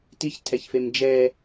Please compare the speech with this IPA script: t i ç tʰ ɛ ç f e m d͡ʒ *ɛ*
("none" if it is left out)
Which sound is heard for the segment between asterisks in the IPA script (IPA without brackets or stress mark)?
ɛ